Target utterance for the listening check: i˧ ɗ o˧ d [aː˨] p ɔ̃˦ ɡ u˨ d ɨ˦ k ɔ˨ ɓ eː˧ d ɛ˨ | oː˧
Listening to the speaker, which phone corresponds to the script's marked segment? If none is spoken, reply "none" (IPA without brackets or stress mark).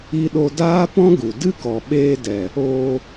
aː˦